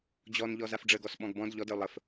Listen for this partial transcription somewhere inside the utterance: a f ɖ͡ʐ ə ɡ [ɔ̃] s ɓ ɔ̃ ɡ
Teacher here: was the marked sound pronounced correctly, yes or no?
no